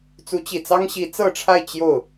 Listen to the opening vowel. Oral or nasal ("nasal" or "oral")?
oral